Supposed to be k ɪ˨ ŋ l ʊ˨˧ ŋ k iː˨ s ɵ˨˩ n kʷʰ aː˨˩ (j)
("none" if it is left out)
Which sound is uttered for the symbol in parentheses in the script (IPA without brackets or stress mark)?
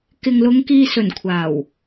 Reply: w